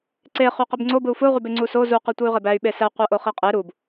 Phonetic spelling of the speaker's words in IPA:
ǀ e χ y q i b ŋ͡ǀ o b ɯ u̯ f ɯ u̯ ʁ y b e ŋ͡ǀ u s o z u q i tʷ ɯ y̯ ʁ e b æ y̯ ɓ e s æ qʷ æ ʔ o χ i qʼ e ɾ u b

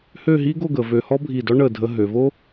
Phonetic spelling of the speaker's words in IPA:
h ø˥˧ ɦ i˥ ɡ o˥˧ ɡ ə˩˧ v ø˧ h ɔ˥ bʱ i˧˩ d ɔ˥ ɳ ə˧˩ dʱ ə˧ ɦ ø˩˧ v o˥

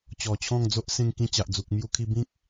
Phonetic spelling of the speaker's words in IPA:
t͡ɕ ɔ˨˩ t͡ɕʰ ɔ̃˥˧ ŋ d͡z o˦ ʔ s ẽ˧ ŋ k ĩ˧ t͡ɕ a˨ ʔ d͡z u˨ k̚ m j u˧ kʰ i˧ b ĩ˦ k̚

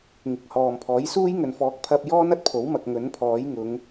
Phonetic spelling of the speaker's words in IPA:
ŋ ɪ˨˥ k̚ h ɔː˨ m pʰ ɔː˨˥ j s uː˥ j ŋ ɵ˨ n f ɔː˨˥ k̚ pʰ ɐ˧ p̚ j ɔː˥ n ɐ˨˥ t̚ pʰ o˨˥ w m ɐ˨ k̚ ŋ ɵ˨˥ n pʰ ɔː˨˥ j ŋ ʊ˨˧ ŋ

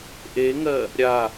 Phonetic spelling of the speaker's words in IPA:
ʔ e ŋ ɜ | ɾʲ a

